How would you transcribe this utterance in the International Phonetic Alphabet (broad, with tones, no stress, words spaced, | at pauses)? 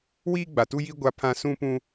wiː˦ɡ͡ba˨tu˦jiː˦ ɡʷa˦pʰã˦ sũ˦pũ˦